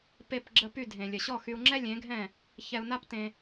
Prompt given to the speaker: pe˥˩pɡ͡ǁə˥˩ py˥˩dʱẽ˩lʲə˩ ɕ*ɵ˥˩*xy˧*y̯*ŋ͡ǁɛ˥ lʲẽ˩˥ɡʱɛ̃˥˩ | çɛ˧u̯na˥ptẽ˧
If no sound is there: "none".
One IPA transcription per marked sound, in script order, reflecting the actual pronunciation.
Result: ɔ˥˩, u̯

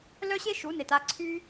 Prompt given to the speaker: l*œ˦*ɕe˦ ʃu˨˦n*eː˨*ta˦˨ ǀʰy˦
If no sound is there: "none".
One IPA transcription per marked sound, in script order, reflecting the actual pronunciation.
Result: œ˦, e˨

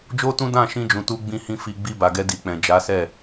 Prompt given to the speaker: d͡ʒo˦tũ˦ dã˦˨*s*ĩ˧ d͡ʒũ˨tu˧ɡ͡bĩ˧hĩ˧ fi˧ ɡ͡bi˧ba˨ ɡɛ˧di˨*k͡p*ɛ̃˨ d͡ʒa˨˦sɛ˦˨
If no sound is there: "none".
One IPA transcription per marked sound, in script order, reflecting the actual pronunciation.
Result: ʃ, k͡p

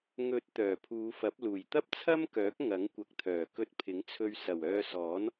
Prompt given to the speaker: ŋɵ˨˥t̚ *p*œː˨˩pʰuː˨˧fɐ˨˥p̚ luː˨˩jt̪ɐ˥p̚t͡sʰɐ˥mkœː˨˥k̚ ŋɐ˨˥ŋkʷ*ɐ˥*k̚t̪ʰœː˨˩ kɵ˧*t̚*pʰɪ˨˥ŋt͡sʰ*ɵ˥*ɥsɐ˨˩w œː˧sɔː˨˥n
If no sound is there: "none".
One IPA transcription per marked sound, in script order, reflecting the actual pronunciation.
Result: t̪, ɐ˨, t̚, ɵ˧

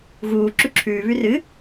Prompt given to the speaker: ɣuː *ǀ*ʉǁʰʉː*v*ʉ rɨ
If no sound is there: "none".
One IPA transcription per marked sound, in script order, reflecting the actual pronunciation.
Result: ǁ, β

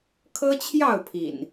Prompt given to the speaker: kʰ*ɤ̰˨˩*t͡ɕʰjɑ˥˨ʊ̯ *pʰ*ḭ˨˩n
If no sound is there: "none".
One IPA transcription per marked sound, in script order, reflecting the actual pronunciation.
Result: ɤ˦, pʰ

